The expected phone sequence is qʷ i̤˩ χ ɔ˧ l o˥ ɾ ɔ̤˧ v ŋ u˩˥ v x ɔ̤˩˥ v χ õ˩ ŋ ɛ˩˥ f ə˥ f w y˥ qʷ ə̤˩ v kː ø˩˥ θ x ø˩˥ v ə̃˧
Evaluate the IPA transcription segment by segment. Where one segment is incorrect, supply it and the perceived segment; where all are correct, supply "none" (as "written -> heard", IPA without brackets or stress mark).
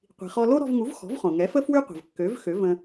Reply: θ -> v